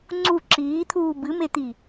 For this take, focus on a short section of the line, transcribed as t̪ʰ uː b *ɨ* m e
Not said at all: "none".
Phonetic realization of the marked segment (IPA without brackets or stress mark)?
ɨ